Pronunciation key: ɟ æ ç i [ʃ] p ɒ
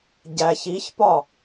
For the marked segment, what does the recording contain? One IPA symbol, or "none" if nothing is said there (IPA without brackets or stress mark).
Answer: ç